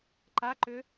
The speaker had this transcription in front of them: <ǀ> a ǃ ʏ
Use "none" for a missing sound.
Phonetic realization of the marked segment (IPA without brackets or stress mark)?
ǃ